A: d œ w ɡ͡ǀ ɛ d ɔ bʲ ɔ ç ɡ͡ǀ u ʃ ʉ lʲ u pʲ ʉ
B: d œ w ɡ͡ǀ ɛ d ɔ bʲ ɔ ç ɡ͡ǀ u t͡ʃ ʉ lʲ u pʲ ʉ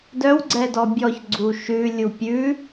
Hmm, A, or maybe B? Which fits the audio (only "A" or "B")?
A